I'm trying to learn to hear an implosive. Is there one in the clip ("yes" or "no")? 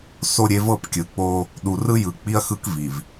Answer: yes